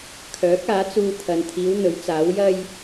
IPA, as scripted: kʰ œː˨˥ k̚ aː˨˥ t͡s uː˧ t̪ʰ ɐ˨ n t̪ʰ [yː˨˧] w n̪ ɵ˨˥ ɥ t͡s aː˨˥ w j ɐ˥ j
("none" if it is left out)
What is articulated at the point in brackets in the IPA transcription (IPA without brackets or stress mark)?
iː˨˧